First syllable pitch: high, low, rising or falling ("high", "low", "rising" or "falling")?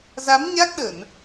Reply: rising